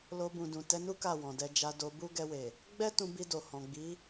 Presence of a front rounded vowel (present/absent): absent